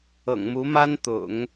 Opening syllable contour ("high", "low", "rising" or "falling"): low